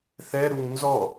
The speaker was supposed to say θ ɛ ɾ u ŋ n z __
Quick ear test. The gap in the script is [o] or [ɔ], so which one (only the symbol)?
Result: ɔ